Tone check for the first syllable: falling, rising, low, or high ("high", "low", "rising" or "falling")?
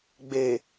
low